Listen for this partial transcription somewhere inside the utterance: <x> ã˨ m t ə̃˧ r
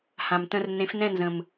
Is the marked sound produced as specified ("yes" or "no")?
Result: no